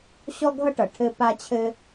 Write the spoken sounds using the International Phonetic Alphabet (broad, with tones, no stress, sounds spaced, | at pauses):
ɕ ɔ˥ ɡʱ ʌ˥ ʈ ʌ˩ ʈʰ ɘ˥ p a˥ t͡ɕʰ ɘ˥